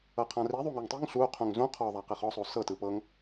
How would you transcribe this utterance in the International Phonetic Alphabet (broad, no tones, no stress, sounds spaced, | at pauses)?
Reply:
ɤ qʰ ã r i ðˤ u ŋ o ŋ tˤ i ŋ ɬ u qʰ ũ ŋ z ũ qʰ ɔ ðˤ a q e χ ɔ sˤ o s ɤ t ɯ p ɤ ŋ